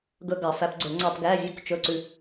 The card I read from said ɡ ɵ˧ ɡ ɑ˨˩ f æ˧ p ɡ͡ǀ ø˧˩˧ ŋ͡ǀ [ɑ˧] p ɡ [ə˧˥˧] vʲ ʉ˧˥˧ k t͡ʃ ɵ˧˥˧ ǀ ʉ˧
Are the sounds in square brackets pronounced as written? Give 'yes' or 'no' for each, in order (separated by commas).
yes, no